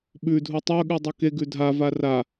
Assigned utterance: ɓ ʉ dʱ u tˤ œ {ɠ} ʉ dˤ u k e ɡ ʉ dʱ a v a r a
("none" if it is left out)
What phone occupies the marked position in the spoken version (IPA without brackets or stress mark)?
ɠ